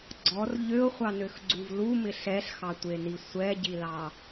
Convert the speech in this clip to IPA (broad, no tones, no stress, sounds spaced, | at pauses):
ɡ͡ǀ ɔ r ʎ ø ʊ̯ χʷ ɑ n ø x ɡ͡ǀ u v l u m ɪ ɬ ɛ ɬ x ɑ tʷ e n i sʷ ɛ ɟ i l ɑ